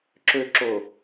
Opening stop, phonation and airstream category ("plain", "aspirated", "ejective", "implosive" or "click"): click